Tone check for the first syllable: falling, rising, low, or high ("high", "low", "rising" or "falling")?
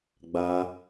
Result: high